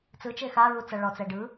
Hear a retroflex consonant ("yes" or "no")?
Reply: yes